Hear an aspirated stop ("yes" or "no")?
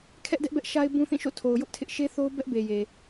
yes